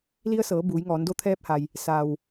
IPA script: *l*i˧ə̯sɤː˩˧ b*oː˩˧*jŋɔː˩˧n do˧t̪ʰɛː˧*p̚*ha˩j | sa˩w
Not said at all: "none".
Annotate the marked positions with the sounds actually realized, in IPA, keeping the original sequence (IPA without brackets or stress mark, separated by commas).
l, uː˩˧, p̚